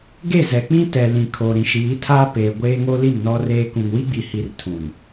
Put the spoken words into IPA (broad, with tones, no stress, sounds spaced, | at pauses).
ɡ e˦˨ z ɛ˨ k͡p ĩ˦ t ɛ˨ l ĩ˨ kʰ oː˨ ɾ ĩ˨ ʃ iː˨˦ tʰ aː˦ p eː˨ ɡʷ eː˦ ŋ o˦ l i˦˨ m n ɔ˦ r eː˦ k ũ˨ ŋ w i˦ ɡ͡b i˨ h i˨ r tʰ ũ˨ n